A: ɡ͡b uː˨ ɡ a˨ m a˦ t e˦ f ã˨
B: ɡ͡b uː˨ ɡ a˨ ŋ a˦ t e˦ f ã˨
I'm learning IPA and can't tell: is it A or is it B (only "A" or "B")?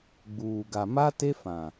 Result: A